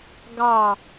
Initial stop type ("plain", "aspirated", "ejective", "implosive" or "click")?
plain